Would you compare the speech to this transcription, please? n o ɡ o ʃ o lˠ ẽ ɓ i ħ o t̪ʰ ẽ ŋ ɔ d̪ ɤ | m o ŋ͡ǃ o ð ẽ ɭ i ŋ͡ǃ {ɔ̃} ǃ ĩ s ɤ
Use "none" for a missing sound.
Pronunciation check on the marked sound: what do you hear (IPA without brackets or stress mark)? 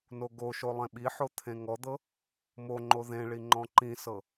ɔ̃